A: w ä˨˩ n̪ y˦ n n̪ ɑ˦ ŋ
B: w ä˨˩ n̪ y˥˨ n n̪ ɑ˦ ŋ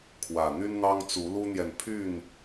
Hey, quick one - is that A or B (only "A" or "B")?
A